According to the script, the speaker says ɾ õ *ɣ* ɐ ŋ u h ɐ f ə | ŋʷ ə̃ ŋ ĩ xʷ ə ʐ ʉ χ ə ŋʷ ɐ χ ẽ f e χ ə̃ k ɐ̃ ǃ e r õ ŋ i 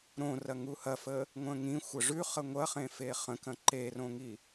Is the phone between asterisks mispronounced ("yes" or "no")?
yes